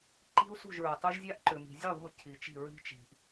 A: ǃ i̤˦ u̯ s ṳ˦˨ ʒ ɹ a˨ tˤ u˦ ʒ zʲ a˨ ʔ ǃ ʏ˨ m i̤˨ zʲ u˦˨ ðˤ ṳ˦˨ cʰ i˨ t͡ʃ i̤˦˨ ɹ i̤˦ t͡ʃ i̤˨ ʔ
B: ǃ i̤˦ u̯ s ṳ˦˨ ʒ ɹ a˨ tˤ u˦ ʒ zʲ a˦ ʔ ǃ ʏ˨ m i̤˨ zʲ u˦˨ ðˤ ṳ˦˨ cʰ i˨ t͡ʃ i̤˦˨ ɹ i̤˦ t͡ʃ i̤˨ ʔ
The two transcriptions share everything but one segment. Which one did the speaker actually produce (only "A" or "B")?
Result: B